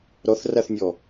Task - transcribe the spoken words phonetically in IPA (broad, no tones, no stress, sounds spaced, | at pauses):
ɾ ɔ θ r a θ nʲ ɔ